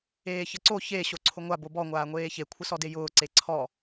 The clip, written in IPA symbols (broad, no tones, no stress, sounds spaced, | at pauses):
eː ç ə ǀ o ç e ɕ o ǀʰ ʊ ŋʷ a b o b ɔ ŋʷ aː ŋʷ eː ç e kʷʰ ə s ɔ d e j ʊː ǀ e ǀʰ ɔ